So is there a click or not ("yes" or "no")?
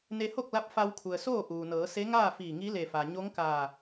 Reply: no